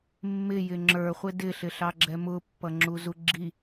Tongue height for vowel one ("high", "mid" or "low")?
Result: high